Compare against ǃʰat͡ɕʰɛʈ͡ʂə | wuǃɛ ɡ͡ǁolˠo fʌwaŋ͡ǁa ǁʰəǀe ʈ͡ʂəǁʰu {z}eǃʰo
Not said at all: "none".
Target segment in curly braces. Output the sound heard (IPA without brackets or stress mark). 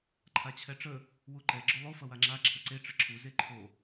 z